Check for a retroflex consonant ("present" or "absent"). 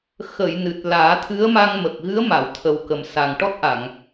present